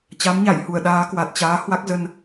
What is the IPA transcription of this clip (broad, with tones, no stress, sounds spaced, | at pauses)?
t͡ɕ a˨˦ m ɲ a˧˩ j h u˧˩ ə̯ ɗ aː˨˦ k w a˨˩ t̚ t͡ɕ aː˨˦ h w a˦˥ k̚ z ə˧ n